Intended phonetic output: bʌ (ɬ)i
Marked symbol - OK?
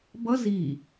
no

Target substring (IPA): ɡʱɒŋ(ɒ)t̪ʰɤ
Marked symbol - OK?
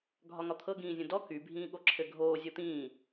yes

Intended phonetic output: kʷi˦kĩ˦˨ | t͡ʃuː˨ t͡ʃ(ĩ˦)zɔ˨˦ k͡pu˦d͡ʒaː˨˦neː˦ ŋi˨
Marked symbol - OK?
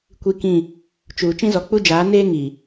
yes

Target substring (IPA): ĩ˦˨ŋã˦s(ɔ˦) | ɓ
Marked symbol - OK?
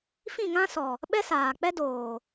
no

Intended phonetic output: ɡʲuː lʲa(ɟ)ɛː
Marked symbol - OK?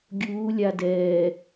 no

